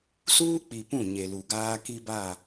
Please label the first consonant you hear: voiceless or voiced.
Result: voiceless